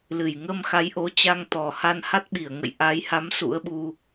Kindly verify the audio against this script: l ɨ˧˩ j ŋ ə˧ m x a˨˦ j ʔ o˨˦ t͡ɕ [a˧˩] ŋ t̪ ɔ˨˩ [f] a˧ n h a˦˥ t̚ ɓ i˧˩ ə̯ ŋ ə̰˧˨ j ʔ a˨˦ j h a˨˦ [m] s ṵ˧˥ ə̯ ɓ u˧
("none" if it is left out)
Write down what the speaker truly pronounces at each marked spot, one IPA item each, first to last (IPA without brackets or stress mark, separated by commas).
a˧, h, m